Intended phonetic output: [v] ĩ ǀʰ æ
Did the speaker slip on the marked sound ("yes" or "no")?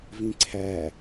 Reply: no